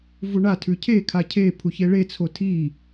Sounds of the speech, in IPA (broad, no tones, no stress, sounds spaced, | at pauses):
v u ɳ a tʰ ʉ cʰ e kʰ a cʰ e pʰ u ç e ɭ e t͡sʰ o tʰ i